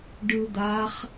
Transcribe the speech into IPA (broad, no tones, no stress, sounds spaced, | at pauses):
ɖ ɯ d̪ a χ